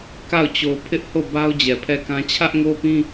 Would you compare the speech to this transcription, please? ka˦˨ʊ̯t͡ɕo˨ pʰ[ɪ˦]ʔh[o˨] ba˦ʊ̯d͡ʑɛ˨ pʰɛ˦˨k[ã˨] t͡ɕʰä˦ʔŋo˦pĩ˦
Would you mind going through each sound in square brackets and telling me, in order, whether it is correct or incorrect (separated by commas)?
correct, incorrect, incorrect